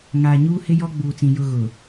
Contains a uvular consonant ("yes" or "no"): no